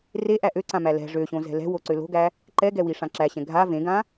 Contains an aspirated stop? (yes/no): no